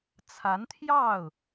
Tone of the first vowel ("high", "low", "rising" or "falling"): rising